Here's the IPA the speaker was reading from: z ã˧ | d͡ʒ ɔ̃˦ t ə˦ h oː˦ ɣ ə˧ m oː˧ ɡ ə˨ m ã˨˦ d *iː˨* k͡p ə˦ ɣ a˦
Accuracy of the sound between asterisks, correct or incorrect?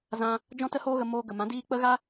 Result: incorrect